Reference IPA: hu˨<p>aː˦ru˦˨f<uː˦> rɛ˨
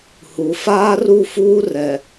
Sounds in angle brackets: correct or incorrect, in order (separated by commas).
incorrect, correct